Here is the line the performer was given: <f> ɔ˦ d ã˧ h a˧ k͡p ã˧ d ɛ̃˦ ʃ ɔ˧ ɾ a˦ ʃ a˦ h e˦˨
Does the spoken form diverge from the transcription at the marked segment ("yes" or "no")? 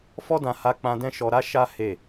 no